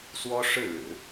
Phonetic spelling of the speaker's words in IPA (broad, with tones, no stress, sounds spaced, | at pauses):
s w ɔ˥ ʂ ɻ̩˥˩ ɻ ɻ̩˨˩˦